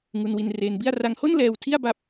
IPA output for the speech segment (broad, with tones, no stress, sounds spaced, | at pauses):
ŋ u˧ n w i˧ n r eː˧ n b i˥˩ a̯ r a˧ ŋ h o˥˩ n l ɛː˧ w tʰ i˥˩ a̯ b a˥˩ p̚